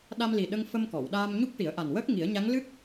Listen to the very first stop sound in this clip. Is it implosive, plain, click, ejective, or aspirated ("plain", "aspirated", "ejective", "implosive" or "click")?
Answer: implosive